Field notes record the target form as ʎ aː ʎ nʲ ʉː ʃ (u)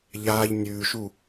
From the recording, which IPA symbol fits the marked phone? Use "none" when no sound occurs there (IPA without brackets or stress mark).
u